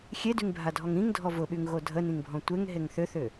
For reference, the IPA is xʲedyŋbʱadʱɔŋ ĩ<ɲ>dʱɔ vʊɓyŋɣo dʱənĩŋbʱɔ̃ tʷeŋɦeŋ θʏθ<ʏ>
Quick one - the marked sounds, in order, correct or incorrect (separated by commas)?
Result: incorrect, correct